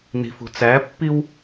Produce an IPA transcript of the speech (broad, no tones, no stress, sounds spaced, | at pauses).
n i̤ f ṳ t͡s æ pː i w